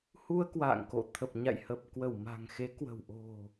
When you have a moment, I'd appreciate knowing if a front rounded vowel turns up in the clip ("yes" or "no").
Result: no